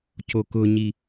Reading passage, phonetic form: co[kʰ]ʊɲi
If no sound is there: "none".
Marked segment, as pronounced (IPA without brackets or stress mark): k